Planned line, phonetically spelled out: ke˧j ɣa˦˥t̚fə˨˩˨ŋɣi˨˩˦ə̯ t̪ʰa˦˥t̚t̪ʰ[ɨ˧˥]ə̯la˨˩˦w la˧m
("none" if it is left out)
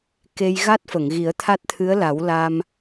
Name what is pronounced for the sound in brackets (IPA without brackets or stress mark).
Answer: ɨ˧˥